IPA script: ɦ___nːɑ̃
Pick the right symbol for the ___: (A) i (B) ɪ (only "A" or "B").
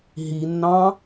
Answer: A